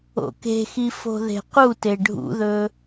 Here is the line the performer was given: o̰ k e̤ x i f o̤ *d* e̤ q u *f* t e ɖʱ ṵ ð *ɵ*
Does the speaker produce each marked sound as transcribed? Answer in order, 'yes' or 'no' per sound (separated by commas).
no, no, yes